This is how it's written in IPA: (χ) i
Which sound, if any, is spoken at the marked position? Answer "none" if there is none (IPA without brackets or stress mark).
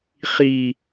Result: χ